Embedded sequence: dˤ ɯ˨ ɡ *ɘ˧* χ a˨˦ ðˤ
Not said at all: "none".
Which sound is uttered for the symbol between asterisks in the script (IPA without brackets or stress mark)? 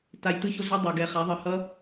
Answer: ɛ˧